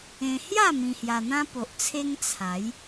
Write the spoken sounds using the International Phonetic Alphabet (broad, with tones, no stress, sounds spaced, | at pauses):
ẽ˧ h j a˥˧ m ĩ˧ h j a˧ n̪ ã˦ p o˨ ʔ t͡sʰ e˦ ŋ t͡sʰ a˨˦ j